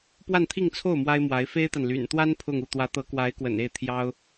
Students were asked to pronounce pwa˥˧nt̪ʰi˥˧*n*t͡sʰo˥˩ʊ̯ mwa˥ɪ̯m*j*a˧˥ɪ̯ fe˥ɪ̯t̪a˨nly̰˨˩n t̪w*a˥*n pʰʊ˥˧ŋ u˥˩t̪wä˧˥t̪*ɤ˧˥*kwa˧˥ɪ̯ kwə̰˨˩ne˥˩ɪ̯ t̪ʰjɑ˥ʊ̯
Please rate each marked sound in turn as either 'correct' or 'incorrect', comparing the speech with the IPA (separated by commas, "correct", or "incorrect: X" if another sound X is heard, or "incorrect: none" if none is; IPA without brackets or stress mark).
incorrect: ŋ, incorrect: w, correct, correct